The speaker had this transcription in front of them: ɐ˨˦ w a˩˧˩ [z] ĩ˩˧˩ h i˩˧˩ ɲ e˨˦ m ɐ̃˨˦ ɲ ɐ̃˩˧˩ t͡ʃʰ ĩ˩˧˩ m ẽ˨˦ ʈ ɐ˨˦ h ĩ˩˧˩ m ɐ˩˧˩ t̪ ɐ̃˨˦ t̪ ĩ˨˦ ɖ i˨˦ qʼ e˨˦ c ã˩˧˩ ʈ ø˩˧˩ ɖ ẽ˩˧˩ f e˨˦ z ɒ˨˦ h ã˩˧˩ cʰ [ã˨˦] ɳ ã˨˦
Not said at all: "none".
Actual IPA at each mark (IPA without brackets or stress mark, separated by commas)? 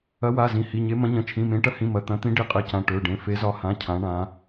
z, ã˨˦